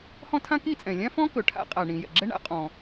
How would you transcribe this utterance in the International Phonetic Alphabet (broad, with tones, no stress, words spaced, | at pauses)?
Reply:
hɔ̃˥tʰã˥ki˥t͡sʼɛ̃˩ lʲã˥fɔ̃˥kɵ˩ ʈʰa̰˥ qʼa˩ɳĩ˩ jɛ̰˩ɡ͡ǁɛ˥ ɳa̰˥ qʼɔ̃˩